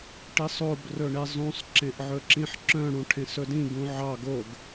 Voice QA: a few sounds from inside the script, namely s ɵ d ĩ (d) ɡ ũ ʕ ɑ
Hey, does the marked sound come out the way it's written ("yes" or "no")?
no